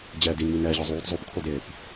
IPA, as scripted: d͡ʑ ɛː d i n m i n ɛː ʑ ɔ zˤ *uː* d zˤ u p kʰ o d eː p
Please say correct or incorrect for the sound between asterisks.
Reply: correct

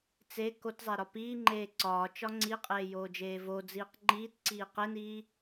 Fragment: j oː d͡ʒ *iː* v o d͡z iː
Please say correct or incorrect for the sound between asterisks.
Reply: incorrect: eː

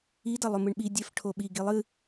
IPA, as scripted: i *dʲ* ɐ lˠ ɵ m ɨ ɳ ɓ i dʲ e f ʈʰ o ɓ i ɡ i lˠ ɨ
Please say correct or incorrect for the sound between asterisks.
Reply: incorrect: d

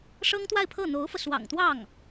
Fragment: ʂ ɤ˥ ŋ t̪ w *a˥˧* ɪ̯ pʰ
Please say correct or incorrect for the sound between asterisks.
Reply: correct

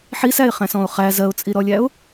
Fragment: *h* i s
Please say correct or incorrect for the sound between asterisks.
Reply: incorrect: ħ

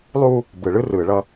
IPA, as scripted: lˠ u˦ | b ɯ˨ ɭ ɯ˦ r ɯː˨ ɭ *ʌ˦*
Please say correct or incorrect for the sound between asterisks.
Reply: correct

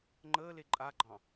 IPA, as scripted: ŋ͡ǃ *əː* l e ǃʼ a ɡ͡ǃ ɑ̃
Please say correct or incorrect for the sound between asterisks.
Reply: correct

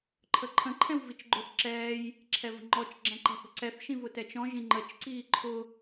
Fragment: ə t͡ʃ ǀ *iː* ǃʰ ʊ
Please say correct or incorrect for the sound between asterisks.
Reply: correct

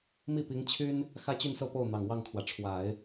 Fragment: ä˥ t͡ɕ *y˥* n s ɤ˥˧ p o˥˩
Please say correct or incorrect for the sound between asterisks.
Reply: incorrect: y˥˧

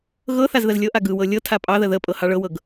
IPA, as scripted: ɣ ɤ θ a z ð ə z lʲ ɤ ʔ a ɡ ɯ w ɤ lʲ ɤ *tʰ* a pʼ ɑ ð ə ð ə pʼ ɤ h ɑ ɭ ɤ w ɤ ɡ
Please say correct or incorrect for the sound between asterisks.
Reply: correct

